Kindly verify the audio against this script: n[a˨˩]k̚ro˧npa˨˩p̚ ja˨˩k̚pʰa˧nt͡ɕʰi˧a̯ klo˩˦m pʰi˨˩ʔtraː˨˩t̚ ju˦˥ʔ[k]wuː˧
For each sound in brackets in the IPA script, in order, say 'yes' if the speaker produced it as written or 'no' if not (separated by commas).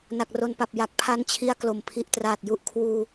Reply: yes, no